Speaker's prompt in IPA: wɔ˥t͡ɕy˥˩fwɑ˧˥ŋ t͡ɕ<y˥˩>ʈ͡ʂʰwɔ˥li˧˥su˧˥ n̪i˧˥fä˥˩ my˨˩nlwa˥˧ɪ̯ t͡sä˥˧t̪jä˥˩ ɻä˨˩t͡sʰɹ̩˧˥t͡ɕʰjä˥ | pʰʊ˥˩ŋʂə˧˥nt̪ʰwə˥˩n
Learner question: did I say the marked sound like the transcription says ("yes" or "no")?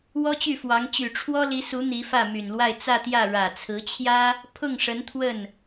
no